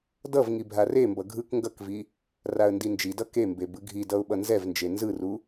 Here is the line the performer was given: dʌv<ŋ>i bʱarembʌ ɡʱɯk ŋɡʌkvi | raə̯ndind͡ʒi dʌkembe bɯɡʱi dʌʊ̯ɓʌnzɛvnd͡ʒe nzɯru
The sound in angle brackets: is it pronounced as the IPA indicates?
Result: yes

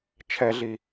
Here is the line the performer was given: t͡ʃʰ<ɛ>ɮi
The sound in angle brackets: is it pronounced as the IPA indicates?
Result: yes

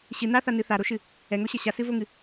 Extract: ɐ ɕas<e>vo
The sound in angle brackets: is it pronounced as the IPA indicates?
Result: no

